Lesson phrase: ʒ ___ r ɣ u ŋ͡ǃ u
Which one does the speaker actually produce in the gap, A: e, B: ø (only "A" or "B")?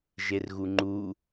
A